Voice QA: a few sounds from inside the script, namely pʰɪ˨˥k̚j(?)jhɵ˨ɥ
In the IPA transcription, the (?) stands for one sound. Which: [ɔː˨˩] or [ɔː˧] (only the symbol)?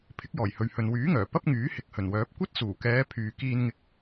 ɔː˨˩